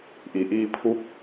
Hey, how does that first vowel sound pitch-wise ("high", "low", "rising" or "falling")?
low